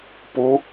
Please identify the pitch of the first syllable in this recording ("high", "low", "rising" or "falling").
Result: rising